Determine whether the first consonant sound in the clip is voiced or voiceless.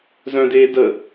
voiced